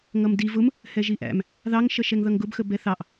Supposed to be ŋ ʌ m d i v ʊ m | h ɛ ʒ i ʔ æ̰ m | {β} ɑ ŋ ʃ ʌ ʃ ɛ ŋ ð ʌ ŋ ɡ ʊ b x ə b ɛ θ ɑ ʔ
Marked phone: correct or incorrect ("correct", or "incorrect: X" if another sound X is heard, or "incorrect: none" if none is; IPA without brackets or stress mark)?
incorrect: ð